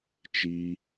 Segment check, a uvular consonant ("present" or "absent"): absent